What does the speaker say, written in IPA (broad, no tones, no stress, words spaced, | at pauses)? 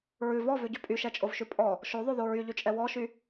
ɹʉ vɔvʉɟʉ pʼyʃɛt͡ʃʼovʃʉ pʼɔ | ʃoðˤʉðo ɹyʎyt͡ʃʼɛ wɔʃy